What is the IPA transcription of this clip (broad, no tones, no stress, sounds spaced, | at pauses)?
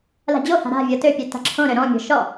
l a̤ d͡ʑ o h a̤ ɾ a̤ vʲ ɤ t ø pʲ ø t a̤ ǁʰ õ ɾ ø ɾ ɔ̃ mʲ ɔ̤ ʃ ɔ